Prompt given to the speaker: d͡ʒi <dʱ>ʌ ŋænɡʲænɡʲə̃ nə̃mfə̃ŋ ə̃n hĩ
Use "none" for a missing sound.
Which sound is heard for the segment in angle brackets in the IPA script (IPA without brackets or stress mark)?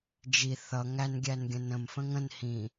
θ